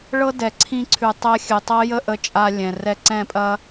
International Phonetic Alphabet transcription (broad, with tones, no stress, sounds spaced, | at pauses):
ɭ ɤ˦ d ɛ˨ ǀʰ ĩ˧ ǀʰ ʉ˨ tˤ ɛ˧ xʲ ʉ˨ tˤ ɤ˦ j ə˦˨ ʔ ə˧ t͡ʃʼ a˧ lʲ ɛ̃˨ r ɛ˧ ǀ ɛ̃˦˨ pʼ ɐ˦